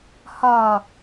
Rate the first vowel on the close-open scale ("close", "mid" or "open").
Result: open